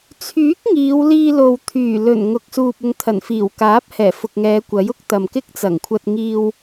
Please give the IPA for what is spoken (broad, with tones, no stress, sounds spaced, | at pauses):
t͡sʰ yː˨˥ k̚ ŋ iː˨˧ w l iː˧ l o˨ w t̪ʰ yː˨˩ l ɵ˨˩ n ŋ ʊ˨ k̚ s uː˨ p̚ ʊ˨˧ ŋ t̪ʰ ɐ˨˩ n f iː˨˩ w k aː˨˥ p̚ h ɛː˨˩ f ʊ˨ k̚ ŋ ɛː˨˧ kʷ ɐ˨˥ j ʊ˥ k̚ t̪ ɐ˨ m k ɪ˥ k̚ t͡s ɐ˨˩ ŋ kʷʰ ɐ˧ t̚ ŋ iː˧ w